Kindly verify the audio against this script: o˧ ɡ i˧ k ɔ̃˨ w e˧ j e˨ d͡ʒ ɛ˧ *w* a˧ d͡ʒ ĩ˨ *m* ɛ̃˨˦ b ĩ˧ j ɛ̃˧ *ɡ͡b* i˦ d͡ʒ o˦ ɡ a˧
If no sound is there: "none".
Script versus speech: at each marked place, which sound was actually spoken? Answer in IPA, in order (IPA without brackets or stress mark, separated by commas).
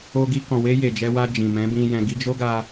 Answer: w, m, ɡ